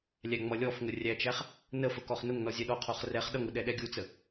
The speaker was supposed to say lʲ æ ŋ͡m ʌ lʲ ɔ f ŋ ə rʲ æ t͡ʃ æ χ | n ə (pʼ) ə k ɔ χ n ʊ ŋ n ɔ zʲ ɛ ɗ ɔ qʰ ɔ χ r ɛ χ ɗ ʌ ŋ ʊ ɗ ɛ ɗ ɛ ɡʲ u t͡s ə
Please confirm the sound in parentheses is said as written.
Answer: no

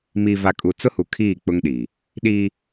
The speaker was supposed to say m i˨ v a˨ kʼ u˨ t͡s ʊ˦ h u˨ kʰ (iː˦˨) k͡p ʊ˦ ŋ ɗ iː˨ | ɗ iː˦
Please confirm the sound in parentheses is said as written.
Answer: yes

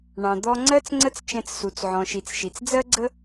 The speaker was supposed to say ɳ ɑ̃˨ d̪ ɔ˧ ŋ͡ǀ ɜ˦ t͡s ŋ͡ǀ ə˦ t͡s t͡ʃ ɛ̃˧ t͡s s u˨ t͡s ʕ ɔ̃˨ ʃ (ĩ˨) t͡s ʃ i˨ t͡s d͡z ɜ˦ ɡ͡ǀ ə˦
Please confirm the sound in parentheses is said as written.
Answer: no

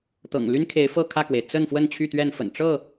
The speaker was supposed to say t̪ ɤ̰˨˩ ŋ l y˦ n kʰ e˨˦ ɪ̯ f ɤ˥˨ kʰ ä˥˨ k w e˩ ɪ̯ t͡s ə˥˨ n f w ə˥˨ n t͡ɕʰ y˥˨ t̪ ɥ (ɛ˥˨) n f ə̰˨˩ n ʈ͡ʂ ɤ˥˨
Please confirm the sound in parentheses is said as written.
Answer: yes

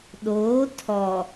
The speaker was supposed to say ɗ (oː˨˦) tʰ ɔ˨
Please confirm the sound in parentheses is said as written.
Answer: yes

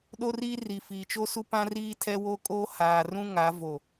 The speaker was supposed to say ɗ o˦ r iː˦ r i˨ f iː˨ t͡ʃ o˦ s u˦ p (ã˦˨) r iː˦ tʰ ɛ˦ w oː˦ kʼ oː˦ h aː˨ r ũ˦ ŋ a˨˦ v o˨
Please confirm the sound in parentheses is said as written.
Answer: no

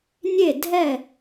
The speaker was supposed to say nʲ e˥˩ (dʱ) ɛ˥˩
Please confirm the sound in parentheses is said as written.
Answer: yes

